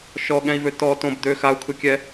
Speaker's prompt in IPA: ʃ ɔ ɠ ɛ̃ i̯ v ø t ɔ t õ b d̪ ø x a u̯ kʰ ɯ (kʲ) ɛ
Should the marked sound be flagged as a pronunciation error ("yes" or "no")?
no